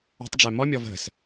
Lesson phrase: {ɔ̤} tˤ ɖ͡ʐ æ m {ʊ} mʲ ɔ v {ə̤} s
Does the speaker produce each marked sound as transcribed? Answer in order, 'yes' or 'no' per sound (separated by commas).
yes, no, yes